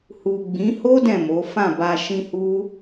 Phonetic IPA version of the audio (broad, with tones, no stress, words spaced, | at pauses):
hu˨ɡ͡bĩ˨˦ho˦ dɛ̃˦˨mo˨˦ fã˦˨ba˧ ʃĩ˧hu˦